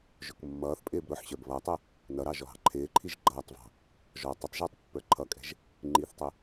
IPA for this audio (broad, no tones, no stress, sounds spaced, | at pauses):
ʒ ʊ k mː ʌː θ pʼ ɪː b ɾ ʊ ħ ɕ ə˞ b β ʌː tˤ ə | n ʌ ɾ ɑ ʒ ɔ ɦ ɑ̤ ǃʰ ɪː ǃʰ i ʒ ɡ͡ǃ ʌː tˤ v ɑ̤ | ʒ ɔ tˤ ə tˤ ʒ ɪː tˤ pː ə˞ ǃʰ ʌ kʼ ɛ̤ ʒ | ŋ͡ǃ i θ tˤ ʊ